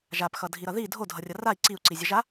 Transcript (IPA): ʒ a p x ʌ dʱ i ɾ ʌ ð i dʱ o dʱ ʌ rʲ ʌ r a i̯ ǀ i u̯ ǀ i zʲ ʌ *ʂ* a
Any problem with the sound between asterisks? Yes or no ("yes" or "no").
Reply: yes